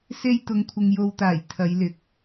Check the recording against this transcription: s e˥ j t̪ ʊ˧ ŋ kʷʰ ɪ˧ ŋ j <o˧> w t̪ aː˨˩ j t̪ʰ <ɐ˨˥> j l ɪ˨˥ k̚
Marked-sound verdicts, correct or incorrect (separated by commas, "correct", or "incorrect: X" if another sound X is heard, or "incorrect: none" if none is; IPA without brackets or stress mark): correct, incorrect: ɐ˨˧